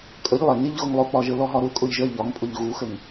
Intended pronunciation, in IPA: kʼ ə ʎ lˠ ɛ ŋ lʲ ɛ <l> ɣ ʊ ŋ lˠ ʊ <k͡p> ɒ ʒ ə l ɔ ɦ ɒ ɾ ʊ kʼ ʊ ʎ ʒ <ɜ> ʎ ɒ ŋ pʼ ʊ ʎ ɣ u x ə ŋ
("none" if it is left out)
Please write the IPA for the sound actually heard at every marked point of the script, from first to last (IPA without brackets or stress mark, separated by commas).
ʎ, k͡p, ɜ